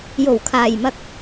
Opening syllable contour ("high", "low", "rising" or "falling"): low